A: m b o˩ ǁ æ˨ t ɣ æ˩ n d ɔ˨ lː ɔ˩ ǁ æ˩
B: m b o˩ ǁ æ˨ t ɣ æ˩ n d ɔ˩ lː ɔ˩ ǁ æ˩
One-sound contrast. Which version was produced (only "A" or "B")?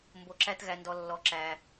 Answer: B